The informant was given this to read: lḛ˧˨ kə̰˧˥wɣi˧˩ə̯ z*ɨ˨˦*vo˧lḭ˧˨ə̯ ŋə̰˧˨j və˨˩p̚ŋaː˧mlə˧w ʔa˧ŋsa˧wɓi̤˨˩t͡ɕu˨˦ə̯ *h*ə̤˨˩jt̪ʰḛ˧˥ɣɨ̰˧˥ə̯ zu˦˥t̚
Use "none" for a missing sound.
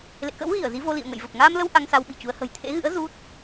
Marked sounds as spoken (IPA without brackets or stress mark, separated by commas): i˨˦, h